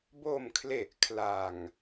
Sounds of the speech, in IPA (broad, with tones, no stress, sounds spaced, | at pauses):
b o˨˩ m kʰ l e˨˩ ʔ kʰ l a˨˩ ŋ